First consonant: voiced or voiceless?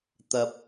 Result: voiceless